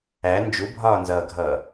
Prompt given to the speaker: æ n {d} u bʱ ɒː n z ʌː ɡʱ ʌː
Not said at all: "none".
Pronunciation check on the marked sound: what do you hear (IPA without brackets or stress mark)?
d͡ʒ